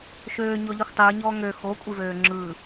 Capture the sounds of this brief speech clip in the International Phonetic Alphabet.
ʃøːɲɔʎixʷ tˤɯːɲɔː ŋø xokʷʼivøː ŋ͡ǁɯ

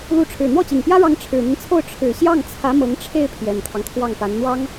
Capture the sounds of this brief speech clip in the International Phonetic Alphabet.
lu˧˥ʈ͡ʂʰɻ̩˨˩ n̪wɔ˥˩t͡ɕi˨˩ŋpjä˥ɻɑ˧˥ŋ ʈ͡ʂʰɻ̩˨˩n̪i˦nt͡sʰo˥˩ʊ̯ ʈ͡ʂʰɻ̩˨˩ɕjɑ˥˩ŋ t͡sʰä˧˥mɤ˧˥ŋʈ͡ʂʰe˥˩ɪ̯ pʰjɛ˨˩nt̪ʰɑ˦ŋt̪ʰwɑ˥˩ŋpa˧˥n n̪wɑ˥ŋ

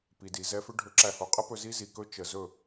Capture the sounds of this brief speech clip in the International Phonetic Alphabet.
pi˨di˨zɛ˧fʏ˦ ɖʱɵ˨˦ǁæ˨ho˨qʼə˦ pɵ˧zi˦zi˨kɵ˦ t͡ʃə˨ zɵ˦˨

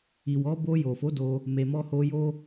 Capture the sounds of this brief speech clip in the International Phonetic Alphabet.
i˨wɔ˨˦ bo˧ jo˨fo˨˦ do˧ | me˨mɔ˧ho˧jo˦

